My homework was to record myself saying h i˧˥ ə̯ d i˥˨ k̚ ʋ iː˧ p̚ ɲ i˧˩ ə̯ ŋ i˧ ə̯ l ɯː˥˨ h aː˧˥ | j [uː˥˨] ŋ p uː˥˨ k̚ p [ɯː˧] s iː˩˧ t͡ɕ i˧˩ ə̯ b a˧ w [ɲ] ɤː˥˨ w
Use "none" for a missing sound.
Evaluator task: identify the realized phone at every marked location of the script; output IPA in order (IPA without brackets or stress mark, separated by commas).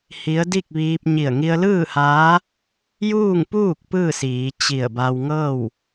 uː˥˨, ɯː˥˨, ŋ